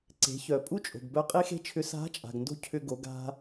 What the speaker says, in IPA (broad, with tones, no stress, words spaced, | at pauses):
ǀe̤˩˧çœ˩pʼu˥ t͡ʃʼo̤˩ɡbœ˧ qʼe˥xe̤˥t͡ʃʰʏ˧˥ sa̤˧˥ t͡ʃʼa̤˩ɡndo̤˥ cʰʏ˧ɡo˩˧ɡ a̤˧